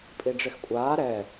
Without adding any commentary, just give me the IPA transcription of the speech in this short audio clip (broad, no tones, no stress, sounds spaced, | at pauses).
pʼ i ɖ͡ʐ ɪ x kʷʼ aː ɾ ɛ